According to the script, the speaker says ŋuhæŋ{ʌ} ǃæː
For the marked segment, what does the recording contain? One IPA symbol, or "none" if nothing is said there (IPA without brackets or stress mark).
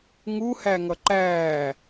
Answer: ʌ